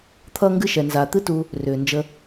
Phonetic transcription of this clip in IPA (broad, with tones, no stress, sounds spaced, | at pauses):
t̪ʰ ʌː˥ ŋ ɡ ɨ˥ ʃ ɛ˨ n z aː˨ t̪ ɨ˦ t u˨ | r ʏː˩ n d͡ʒ ə˨